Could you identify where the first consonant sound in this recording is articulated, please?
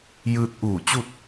palatal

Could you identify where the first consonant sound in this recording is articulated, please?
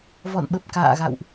labial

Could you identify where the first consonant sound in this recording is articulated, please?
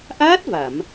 glottal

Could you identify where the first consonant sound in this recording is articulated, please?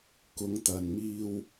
velar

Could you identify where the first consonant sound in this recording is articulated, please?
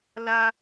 alveolar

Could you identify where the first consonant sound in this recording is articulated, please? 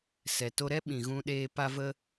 alveolar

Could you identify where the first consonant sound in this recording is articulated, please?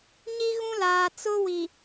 palatal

